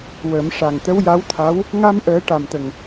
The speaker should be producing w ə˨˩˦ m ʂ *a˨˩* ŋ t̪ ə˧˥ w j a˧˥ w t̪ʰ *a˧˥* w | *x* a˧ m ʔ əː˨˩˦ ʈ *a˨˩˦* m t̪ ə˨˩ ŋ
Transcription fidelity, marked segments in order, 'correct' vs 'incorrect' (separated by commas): correct, correct, incorrect, incorrect